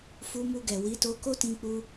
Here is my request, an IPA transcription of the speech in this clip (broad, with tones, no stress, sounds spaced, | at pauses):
f u˧ m u˧ ɡ ɛ˨ w i˨˦ t o˧ k o˦ t ĩ˧ k͡p u˧